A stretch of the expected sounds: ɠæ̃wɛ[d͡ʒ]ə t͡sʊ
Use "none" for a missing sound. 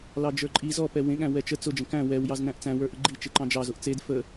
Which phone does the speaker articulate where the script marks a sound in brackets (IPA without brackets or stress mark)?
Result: t͡ʃ